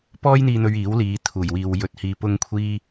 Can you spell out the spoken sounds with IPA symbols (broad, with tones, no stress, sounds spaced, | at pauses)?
p ɔː˥ j n̪ iː˧ n̪ ɵ˧ ɥ iː˨˥ w l iː˨˧ t̪ʰ uː˨˩ j w iː˨ w j ɵ˨˥ t̚ h iː˨˧ p ʊ˧ ŋ kʷʰ iː˧